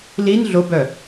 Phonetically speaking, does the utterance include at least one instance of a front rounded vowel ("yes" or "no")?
yes